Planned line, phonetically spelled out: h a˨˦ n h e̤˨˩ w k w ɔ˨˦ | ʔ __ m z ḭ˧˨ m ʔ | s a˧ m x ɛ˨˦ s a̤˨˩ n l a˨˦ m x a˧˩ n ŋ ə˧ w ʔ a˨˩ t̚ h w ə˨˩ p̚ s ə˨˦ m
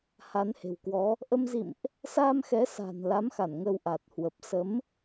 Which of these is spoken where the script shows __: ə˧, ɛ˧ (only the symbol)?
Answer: ə˧